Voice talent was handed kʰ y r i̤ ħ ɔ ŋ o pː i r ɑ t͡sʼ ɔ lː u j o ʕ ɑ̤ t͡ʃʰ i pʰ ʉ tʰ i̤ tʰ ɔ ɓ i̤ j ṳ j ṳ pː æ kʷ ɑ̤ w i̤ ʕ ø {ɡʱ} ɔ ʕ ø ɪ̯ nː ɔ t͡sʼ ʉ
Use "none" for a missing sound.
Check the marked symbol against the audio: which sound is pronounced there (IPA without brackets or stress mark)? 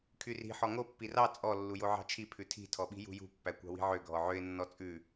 ɡʱ